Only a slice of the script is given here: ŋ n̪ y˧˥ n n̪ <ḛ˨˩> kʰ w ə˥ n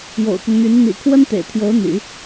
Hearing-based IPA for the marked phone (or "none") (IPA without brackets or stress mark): ḭ˨˩